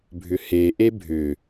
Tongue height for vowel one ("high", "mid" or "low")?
high